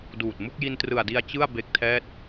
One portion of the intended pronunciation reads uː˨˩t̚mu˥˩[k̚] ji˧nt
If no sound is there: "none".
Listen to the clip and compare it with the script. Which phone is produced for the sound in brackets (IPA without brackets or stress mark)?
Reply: k̚